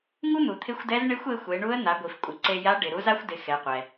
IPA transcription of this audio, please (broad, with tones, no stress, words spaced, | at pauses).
ŋu˥n̪u˩t̪ʰɪ˧˥xʷdɛ˧˥z ɳɪ˧˥xʷe˧ xʷe˩˧ɳu˧˥ə̯ n̪a˩˧ɡʷi˩fkʷʼɪ˩˧ ǀe˧ja˧˥ ɖɪ˩ ɾu˧˥za˥xʷ dɪ˩˧ xɛ˩˧qʷɛ˩